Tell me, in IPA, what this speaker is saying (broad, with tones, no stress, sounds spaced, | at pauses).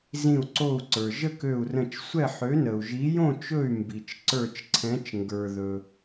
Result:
z ĩ˧˩ u̯ ǀ o˥˨ u̯ ǀ ə˞˩ ʒ ə˥˨ k ø˧˩ u̯ r ə̃˧˩ t͡ʃ sʷ ɛ˥˨ ħ ø˨˥ n ə˩ u̯ ʒ i˨˥ j õ˥˨ t͡ʃ ɵ˥˨ y̯ m b i˩ t͡ʃ ǀ ə˞˧˩ t͡ʃ ǀʰ ɛ̃˨˥ t͡ʃ ŋ ɡ ə˞˩ ð ɵ˩